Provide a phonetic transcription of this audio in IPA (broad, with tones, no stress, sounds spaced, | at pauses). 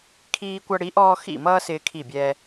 kʰ iː˧ kʷ ʌ˧ ɽ i˨˥ ʔ ɔː˧ x ḭ˧˩ m ʌː˧ s ɪː˧ kʰ i˧˩ bʲ ɛː˧